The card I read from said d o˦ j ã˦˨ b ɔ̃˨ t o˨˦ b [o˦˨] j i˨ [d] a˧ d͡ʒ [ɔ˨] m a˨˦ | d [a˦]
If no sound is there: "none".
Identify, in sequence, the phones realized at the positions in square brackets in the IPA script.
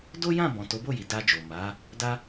o˦˨, d, o˨, a˦

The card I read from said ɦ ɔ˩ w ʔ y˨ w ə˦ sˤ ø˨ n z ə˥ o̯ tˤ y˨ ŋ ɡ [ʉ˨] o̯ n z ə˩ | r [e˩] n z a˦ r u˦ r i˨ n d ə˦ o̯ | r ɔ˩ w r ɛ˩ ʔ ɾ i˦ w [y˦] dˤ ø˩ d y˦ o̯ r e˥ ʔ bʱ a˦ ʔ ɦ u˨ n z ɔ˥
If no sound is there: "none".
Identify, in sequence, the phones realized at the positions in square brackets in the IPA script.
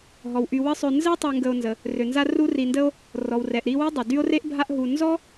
ə˨, ø˩, y˥

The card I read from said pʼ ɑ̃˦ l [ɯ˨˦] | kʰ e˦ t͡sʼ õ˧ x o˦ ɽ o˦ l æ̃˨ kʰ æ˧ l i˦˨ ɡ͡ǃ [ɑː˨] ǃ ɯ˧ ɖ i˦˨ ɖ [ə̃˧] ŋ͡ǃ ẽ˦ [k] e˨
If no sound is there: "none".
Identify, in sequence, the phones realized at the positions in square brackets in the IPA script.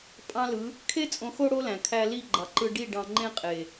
ɯ˨˦, ɑ˨, ɑ̃˧, qʼ

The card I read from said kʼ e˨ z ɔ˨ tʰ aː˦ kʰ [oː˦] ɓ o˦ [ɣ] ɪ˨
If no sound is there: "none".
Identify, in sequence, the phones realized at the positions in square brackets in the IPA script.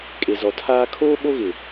oː˦, ɣ

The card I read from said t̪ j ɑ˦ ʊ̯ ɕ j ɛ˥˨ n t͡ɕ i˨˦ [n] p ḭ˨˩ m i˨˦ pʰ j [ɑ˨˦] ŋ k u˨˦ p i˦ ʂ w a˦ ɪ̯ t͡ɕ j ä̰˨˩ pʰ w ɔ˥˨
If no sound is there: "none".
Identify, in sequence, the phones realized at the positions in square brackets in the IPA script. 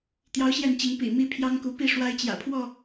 ŋ, ɑ˦

